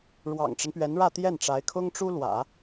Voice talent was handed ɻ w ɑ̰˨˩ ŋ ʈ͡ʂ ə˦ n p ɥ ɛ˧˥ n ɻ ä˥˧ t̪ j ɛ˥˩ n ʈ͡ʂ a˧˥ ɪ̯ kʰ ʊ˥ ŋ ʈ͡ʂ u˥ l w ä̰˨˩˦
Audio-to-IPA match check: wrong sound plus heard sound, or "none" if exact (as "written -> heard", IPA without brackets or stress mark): none